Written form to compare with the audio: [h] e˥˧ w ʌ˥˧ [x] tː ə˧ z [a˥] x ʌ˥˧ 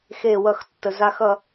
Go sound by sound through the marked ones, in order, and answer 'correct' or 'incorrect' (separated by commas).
incorrect, correct, correct